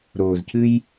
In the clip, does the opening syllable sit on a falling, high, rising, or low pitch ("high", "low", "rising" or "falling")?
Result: low